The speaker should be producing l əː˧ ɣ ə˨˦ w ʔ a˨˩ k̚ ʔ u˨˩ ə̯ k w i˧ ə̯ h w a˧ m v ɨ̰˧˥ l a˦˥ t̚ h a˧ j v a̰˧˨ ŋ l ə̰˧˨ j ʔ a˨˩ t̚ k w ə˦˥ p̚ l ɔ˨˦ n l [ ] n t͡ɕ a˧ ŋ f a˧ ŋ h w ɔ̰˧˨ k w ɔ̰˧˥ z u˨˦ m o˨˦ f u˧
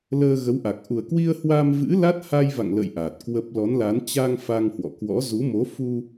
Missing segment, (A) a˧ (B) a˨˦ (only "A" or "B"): B